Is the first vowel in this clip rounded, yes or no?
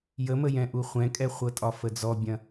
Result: no